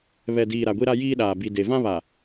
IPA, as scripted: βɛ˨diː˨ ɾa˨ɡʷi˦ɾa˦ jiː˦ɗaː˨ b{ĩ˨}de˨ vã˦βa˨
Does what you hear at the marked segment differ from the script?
yes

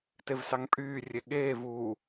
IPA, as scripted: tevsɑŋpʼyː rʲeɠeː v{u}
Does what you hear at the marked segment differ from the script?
no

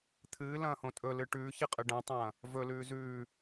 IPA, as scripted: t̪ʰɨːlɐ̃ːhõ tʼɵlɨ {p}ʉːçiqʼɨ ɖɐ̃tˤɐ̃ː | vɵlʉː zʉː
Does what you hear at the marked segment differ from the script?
yes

